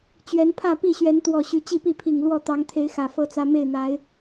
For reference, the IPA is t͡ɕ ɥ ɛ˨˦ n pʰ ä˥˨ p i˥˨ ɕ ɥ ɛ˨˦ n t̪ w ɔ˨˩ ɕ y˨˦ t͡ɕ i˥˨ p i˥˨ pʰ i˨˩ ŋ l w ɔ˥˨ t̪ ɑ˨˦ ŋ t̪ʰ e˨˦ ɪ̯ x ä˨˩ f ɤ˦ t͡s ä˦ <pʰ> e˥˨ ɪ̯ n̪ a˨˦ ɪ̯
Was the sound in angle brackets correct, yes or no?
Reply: no